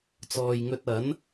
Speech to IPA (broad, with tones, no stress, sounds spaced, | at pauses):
t͡s ɔː˨ j ŋ ɵ˧ t̚ ɐ˨˥ n